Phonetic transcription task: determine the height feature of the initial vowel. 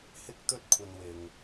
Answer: high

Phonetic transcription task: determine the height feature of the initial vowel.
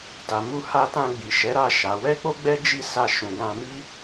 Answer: low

